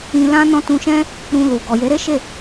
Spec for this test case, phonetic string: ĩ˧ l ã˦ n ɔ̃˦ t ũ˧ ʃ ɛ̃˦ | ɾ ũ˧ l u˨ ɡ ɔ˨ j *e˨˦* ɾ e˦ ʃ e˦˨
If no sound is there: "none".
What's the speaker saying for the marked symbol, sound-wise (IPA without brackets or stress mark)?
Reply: e˨˦